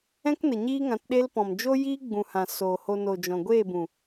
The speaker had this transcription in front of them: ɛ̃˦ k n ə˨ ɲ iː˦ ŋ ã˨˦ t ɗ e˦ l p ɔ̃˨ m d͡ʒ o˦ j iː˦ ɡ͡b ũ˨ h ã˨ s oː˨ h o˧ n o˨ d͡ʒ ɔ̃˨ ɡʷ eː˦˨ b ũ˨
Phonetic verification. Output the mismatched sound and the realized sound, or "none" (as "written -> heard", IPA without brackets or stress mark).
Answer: none